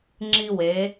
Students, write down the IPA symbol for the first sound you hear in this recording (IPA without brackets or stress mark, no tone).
ŋ͡ǁ